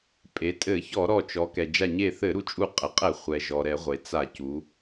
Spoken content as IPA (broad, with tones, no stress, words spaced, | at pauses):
pʼe˩˧tʼɘ˧˩˧ çɔ˧˩˧ɾɔ˧˩t͡ʃɔ˩˧ kɛ˩d͡ʒa˧˩ɲe˧˩θɘ˧˩˧ ɾu˧˩t͡ʃʼu˧˩qʼɘ˩˧qʼɛ˧˩˧ χʷɛ˩ʒɔ˩ ɾɛ˧˩˧ʁʷe˩t͡sa˧˩˧ cu˩˧